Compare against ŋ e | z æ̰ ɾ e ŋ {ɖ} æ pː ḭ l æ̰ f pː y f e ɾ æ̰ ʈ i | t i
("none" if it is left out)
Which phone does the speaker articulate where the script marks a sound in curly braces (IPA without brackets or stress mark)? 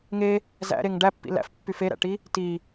ɖ